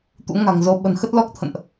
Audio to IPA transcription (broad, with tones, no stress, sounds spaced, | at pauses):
t̪ ṵ˧˥ ŋ a̤˨˩ ŋ z o˨˦ ɓ ə̤˨˩ n x ə˦˥ t̚ l ɔ˦˥ k̚ t̪ʰ ə̰˧˨ n ʔ